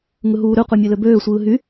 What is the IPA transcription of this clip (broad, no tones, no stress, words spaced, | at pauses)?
ŋɯɦuːɾyqʷɯ mʲøløbøːsʷɯː ɦy